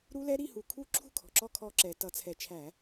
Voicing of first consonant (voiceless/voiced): voiced